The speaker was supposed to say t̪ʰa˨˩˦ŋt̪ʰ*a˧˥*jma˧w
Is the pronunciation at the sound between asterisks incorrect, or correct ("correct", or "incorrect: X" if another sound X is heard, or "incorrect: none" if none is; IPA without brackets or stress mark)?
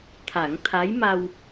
correct